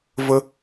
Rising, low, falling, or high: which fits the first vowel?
high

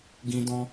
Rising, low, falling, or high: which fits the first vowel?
high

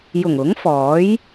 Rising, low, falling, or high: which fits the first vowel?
low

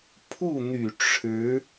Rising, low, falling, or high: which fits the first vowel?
falling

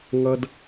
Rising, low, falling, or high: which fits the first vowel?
high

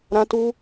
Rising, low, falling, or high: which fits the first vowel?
high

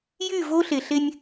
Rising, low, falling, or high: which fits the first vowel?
falling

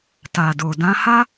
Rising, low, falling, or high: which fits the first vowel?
low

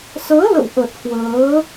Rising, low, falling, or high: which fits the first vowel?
rising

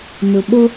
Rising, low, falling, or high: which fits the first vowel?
low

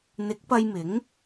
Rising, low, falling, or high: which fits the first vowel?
rising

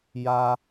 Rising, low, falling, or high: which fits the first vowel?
high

